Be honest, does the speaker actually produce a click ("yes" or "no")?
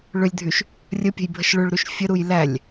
no